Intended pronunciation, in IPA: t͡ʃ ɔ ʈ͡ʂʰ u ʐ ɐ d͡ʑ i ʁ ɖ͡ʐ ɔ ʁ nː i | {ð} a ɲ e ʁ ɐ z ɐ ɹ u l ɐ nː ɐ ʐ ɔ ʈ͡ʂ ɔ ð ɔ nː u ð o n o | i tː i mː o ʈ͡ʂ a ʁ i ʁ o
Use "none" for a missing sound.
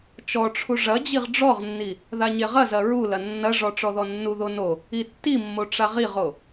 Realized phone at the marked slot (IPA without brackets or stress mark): ð